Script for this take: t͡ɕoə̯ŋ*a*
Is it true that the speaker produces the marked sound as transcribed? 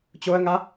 yes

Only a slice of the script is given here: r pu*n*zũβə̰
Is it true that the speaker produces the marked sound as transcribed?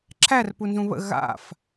yes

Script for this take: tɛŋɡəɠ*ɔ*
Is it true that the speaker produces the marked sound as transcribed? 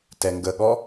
yes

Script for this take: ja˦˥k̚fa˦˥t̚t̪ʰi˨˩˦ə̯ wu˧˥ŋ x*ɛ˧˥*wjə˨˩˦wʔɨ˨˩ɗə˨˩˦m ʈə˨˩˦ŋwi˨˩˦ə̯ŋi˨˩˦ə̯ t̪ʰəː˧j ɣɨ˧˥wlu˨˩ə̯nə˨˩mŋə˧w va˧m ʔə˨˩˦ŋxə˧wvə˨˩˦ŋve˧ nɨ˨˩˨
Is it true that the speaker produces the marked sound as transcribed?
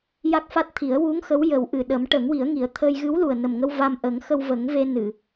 no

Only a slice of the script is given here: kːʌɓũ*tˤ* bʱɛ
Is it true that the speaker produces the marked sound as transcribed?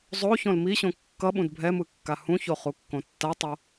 no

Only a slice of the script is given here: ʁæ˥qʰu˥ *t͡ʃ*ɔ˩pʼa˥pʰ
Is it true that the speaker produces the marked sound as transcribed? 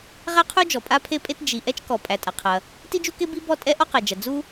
no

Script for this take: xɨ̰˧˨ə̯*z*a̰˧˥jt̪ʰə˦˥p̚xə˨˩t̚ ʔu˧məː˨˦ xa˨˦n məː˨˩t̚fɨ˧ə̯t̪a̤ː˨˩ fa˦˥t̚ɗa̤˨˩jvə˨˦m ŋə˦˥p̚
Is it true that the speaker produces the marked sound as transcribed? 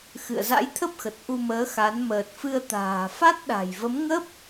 yes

